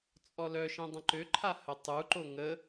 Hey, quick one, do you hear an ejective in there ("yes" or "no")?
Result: yes